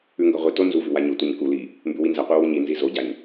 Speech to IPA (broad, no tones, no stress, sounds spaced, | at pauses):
ʉ ŋ ɡ ɐ ʁʷ i t o n z u v ʉ w a ɲ o tʷ ɐ ɲ k u l i | m b ʉ w i n z ɐ qʷ i w u ɲ i n z i z o ɟ a ɲ